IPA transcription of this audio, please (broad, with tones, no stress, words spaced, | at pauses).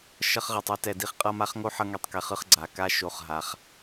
ʃʌ˧χʁe˨tˤe˧tɛ˨ di˧χqʼʌ˦˨ma˦χŋo˦ ħʌ˦ŋe˧tˤkɛ˨χɯ˦˨χ ɡ͡ǀa˨ka˦ ʃo˦˨χɦa˧χ